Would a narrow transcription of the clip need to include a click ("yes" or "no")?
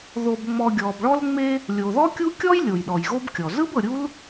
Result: no